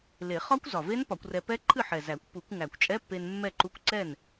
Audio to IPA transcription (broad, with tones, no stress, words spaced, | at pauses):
le˨˩˦ χɒ˦˥kʷ zɒ˨˩ve˦˥n pɒ˨˩˦kʷrɛ˧ pɛ˦˥ ǃʰɨ˥˨ ħɛ˨˩ zæ˨˩˦kʷ pu˨˩˦kʷ ŋæ˨˩kʷt͡ʃʼɛ˧˥˧pːe˧n mːɛ˥˨ǃu˧˥˧kʷ ǀɛ˥˨n